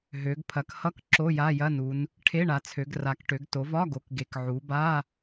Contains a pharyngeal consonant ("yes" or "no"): yes